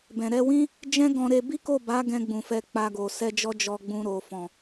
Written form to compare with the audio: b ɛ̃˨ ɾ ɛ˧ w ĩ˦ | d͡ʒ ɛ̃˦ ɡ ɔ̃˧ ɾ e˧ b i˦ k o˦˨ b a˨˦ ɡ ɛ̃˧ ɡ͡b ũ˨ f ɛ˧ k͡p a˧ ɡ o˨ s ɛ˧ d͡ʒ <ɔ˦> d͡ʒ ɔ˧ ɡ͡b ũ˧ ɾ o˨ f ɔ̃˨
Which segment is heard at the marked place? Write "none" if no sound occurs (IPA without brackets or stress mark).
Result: ɔ˦